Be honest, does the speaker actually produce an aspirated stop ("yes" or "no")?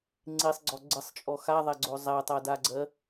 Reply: no